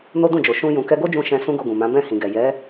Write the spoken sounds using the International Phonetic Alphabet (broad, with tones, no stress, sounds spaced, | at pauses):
n o˦ d ũ˦˨ d͡ʒ o˨ ʃ ũ˧ j ũ˨ k ɛ˧ ɡ o˦ d͡ʒ ũ˧ ʃ ɛ̃˦ s ũ˦ ɡ o˧ ɡ ũ˨ m ã˨˦ b ɛ̃˦˨ h ĩ˨ ɡ ɛ˨ j ɛ˨˦